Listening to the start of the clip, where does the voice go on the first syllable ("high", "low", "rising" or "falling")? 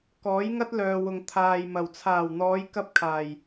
rising